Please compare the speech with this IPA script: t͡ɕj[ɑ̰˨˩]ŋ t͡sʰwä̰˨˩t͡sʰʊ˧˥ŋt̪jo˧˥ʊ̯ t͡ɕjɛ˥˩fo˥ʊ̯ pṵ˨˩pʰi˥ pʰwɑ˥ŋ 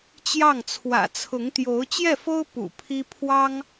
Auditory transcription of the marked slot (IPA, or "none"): ɑ˥˩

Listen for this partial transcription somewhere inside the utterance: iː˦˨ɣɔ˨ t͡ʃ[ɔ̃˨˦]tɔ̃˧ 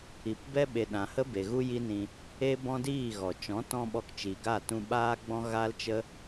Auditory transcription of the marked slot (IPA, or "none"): ɔ̃˨˦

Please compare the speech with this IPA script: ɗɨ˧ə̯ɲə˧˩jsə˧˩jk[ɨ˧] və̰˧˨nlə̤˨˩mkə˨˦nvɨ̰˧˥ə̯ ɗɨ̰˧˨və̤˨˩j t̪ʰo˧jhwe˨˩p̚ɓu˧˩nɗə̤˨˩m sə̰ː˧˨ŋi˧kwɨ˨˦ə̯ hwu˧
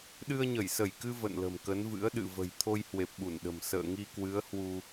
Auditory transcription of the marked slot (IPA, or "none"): ɨ˧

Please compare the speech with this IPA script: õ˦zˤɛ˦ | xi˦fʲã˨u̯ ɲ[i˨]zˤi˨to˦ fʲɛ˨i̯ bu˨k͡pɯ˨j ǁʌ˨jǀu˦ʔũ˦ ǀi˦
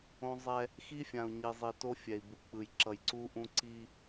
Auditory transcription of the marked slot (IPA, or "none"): i˨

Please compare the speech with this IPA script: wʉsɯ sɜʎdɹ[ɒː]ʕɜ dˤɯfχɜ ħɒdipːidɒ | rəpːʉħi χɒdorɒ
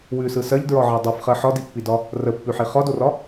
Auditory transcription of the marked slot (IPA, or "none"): ɒ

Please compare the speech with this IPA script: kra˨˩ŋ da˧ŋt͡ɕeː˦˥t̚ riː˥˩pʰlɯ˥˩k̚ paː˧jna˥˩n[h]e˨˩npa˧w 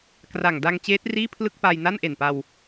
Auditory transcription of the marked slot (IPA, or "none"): ʔ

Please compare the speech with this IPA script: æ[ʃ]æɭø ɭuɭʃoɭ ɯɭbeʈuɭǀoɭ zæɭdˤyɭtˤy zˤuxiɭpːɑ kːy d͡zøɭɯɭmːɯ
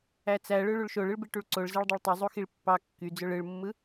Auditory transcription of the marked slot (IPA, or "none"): t͡s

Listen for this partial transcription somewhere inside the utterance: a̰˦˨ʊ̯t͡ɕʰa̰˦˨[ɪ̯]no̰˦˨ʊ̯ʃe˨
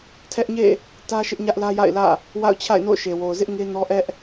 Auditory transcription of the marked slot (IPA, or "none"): ɪ̯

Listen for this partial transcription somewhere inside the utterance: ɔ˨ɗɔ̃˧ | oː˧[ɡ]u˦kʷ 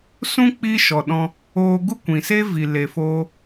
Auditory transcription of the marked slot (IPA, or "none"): ɡ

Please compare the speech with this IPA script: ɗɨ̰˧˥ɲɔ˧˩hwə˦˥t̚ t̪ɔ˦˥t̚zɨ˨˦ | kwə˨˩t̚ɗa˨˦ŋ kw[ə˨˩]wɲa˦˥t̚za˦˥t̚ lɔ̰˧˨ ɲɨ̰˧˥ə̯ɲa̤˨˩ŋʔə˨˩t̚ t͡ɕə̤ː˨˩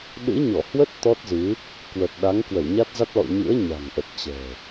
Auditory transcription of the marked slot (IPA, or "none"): ə˧˩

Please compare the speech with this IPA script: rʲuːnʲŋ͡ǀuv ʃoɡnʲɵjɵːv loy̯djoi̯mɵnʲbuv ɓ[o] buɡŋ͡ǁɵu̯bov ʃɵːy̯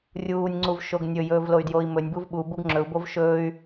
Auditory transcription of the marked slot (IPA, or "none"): u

